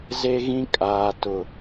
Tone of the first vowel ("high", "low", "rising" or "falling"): high